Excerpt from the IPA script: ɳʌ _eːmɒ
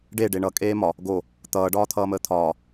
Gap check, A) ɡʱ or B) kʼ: B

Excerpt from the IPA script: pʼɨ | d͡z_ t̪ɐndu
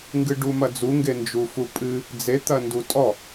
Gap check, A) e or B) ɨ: A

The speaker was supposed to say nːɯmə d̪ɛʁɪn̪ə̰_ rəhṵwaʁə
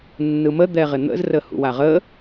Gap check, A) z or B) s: A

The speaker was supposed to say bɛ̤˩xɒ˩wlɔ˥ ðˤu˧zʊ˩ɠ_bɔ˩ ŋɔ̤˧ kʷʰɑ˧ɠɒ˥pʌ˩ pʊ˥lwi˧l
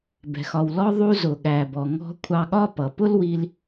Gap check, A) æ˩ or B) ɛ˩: A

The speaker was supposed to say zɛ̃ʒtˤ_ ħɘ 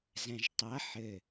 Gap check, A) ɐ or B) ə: A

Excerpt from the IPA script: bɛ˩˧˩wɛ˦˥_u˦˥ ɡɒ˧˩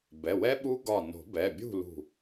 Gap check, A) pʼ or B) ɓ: B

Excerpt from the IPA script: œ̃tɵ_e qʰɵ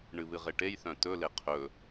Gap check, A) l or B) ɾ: A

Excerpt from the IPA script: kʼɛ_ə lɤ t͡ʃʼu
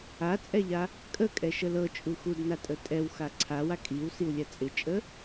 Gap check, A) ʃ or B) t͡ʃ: A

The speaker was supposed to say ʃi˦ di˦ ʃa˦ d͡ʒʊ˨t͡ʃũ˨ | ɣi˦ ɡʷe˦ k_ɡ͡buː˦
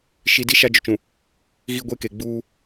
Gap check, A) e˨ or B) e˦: A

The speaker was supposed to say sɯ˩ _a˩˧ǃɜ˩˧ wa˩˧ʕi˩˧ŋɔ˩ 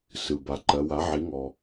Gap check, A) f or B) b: B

